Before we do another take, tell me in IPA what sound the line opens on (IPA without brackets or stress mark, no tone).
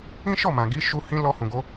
ĩ